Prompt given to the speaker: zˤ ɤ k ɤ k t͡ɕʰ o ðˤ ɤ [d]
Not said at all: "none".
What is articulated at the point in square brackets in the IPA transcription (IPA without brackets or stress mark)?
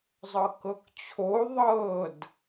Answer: d